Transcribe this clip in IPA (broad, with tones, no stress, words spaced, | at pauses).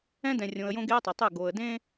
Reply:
ɛ̃˦dɛ̃˨rʲõ˨ə̯jõ˦ ɡe˦ə̯tˤɛ˨tˤɘ˦˨ ɡo˨ə̯dẽ˦